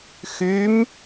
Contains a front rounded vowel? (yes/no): yes